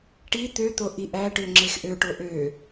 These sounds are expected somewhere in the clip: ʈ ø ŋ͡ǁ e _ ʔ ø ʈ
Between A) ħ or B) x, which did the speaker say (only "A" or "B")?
B